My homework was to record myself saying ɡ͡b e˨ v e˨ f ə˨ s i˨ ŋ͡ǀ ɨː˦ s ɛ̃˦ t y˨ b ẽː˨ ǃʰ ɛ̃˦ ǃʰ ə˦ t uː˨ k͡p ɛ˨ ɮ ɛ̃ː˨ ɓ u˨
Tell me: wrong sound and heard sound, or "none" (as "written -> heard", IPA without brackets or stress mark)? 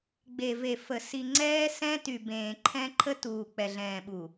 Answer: ɨː˦ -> ɛː˦